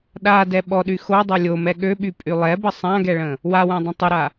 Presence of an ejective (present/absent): present